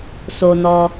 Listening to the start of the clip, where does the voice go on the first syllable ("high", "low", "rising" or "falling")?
low